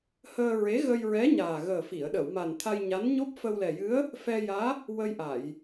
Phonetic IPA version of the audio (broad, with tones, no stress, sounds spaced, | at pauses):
h əː˧ ɹ e˧˥ ɣ ə˧ j ɹ ɛ˧˥ ɲ aː˨˩ ɣ əː˨˩ f i˨˩˨ ə̯ ɗ ə˨˩˨ w m a˨˩ n t̪ʰ a˧ j ɲ a˧˥ n ɲ o˦˥ p̚ f ə˧ w l ɛ˨˩ j ɨ˧˥ ə̯ | f ɛ˧ j aː˧˥ | w ə˧ j ʔ a˨˩˨ j